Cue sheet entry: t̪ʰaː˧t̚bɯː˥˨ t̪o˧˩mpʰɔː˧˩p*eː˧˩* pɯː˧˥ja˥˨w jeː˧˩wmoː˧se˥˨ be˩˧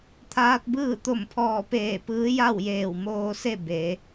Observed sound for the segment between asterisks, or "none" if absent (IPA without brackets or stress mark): eː˧˩